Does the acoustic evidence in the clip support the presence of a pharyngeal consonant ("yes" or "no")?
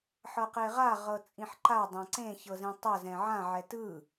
yes